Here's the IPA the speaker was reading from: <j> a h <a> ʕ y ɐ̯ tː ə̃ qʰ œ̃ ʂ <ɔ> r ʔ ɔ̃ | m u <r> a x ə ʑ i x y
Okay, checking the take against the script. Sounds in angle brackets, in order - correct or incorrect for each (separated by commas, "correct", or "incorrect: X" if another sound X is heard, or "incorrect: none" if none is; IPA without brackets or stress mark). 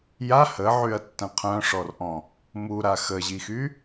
correct, incorrect: ə, correct, incorrect: ɾ